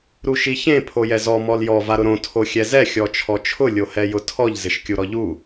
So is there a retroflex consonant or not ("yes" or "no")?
no